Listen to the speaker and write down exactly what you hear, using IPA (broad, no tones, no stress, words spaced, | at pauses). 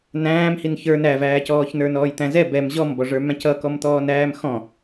næ̃ːmhin çə˞ nævæːcɔːç nə˞nɔːjt̪æ̃zɛ bɛm ʑɔmbɔʐə˞ mæ̃cʌkɔmt̪ɔːn æːmxɔ̃